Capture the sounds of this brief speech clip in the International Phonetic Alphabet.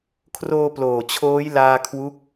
kʰroː˧ploː˨˩ t͡ɕʰoː˦˥jlaː˧kʰwu˦˥k̚

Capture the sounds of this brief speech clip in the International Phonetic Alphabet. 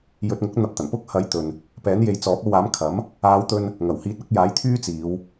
jɵ˨t̚ŋʊ˨˥k̚ n̪ɐ˧p̚t̪ɐ˨˩n pʊ˥k̚hɐ˨˥j t̪ɵ˨n | pɛː˨˥nje˨˧jt͡sɔː˨˥p̚o˧w aː˨˥mkʰɐ˨˥m | aː˨˧wt̪ɵ˧n | ŋɐ˨˩whiː˧t̚ɐ˨˥k̚ jaː˨˥jt̪ʰyː˥t͡siː˨˧w

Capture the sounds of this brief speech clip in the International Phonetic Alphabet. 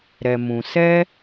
ɾɛ˧mũ˧ sɛ˦

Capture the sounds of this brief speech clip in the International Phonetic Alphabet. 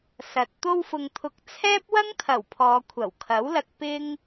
sɐ˨t̚ t̪o˧wfʊ˨ŋt̪ʰʊ˨k̚ t͡sʰɛː˥p̚wɐ˥ŋt̪ʰɐ˨˩w pʰɔː˨˧kʷʰɐ˨˩wkʰɐ˨˥wlɐ˧k̚ pɪ˥ŋ

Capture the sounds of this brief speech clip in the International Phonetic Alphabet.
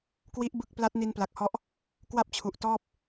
kwi˦˥ʔbɯ˦˥k̚ pla˦˥t̚ni˧npla˨˩k̚hɔ˦˥ʔ | kwa˥˩p̚t͡ɕʰu˨˩ʔtɔː˥˩p̚

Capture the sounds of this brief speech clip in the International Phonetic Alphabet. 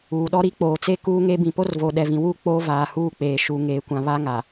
uː˨ɗɔ˦ ɾi˦k͡poː˨t͡se˦ kuː˦ŋe˦ bĩ˨po˦r vo˨ɗɛ˨vĩ˨wu˦˨ k͡poː˦vaː˨huː˦˨k͡peː˨ ʃu˨ ŋeː˨kʷã˨ βa˦ŋa˨

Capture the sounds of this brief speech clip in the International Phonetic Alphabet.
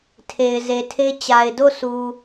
tʰe˨ɪ̯ze˨tʰe˦ t͡ɕa˨ɪ̯do˦˨su˨

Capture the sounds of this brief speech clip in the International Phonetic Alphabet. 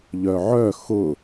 ʎœʕœ xʊ

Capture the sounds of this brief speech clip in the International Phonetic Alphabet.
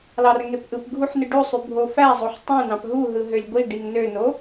lɑrŋepʔɯpɡʱuħ nɯɖosˤy bʱofæzˤoħ tˤẽnɑ̃p ɦuɦɯ ɦølʲɡʷiɖiŋ nøno

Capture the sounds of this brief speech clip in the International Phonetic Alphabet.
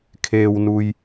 kʰeː˩wnu˩j

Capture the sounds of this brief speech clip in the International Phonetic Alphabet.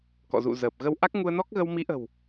kɔ̰˧˨zṵ˧˨zəː˨˩p̚ɣə˧w ʔa˦˥k̚ŋu˧ə̯nɔ˦˥k̚ɣə˧w mi˨˦ʔə̤˨˩w

